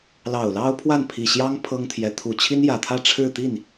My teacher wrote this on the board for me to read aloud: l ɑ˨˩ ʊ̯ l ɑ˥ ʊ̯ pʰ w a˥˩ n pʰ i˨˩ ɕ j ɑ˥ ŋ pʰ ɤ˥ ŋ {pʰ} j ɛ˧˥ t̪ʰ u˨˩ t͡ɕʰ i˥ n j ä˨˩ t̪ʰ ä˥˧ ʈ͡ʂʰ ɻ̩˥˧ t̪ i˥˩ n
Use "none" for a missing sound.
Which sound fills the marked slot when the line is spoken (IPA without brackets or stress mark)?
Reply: t̪ʰ